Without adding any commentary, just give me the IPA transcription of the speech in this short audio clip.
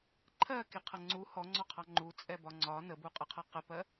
ǃʰ ɜ k i qʰ ʌ ŋ͡ǀ u h ɔ ŋ͡ǀ ɔ qʰ ɑ ŋ͡ǃ u t͡sʼ ɛ b ɒ ŋ͡ǀ ɒ n ə b u qʼ ə qʰ ʌ q ə p ɜ

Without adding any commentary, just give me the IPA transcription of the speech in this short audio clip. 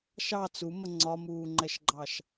ʃ ɑ t͡s u m ə ŋ͡ǀ ɒ m uː ŋ͡ǃ ɛ ʃ ɡ͡ǃ ɑ ʃ

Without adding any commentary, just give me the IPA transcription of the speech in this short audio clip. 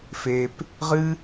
f e p | ʁ ɨ

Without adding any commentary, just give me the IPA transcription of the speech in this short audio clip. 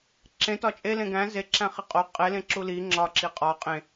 ǁ ẽ t ɒ t͡ʃʼ e l ẽ ɡ æ̃ z e ǁ æ̃ χ i qʼ o qʼ e l ẽ ǁ u l i ŋ͡ǁ ɒ ǁ i qʼ ɒ qʼ ẽ

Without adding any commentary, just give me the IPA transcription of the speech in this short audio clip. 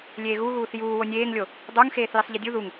lʲ eː ɣ u ɣ uː θ j uː w o nʲ eː ŋ lʲ o | dˤ o ŋ x eː θ j i sˤ ʎ i dʲ u ð u ŋ

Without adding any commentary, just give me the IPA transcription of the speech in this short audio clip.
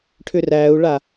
ʈʰ ʏ r æ u̯ ɭ a

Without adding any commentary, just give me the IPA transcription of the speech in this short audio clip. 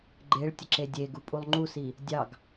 ɡ͡ǃ e ɭ tʲ ə ǁ e dʲ e ɡ u pʼ u lˠ ŋ͡ǃ u s i | dʲ ɑ ɡ

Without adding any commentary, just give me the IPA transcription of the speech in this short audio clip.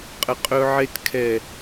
qʼ ə˨ qʼ ɵ˧ ʕ e˧ t kʰ ɛ˨

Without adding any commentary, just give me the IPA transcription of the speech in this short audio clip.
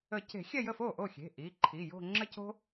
ə˨˩˦ c e̤˨˩˦ xʲ ɛ˥˧ j ə˥˩ f o˥˩ ʔ o˥˩ xʲ e̤˩˧˩ ʔ i˩˧˩ ǃʰ i˩˧˩ j o̤˥˧ ŋ͡ǁ ə˥ c o̤˥

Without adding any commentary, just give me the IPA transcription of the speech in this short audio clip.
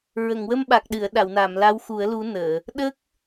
ɹ ə˨˩˨ ŋ w ə˧ m ɓ a˨˩ k̚ ɗ ɨ˨˩˨ ə̯ ɗ a˨˩˨ w n a˨˩˨ m l a˧˥ w x u˨˩˦ ə̯ l u˧˥ n əː˨˩˨ | ɗ ə˦˥ k̚

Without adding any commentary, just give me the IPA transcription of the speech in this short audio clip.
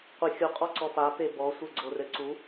qʷ e xʲ u qʼ ɔ ǀ ɔ p a p e b ɔ sʷ ɘ ɡ͡ǀ o r ɘ ǀ u

